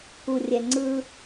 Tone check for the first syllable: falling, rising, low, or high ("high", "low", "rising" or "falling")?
low